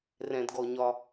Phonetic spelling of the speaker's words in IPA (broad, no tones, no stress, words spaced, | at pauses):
rɛ̃dɡɔɲɒ